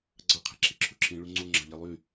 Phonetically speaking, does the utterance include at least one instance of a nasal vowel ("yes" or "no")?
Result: yes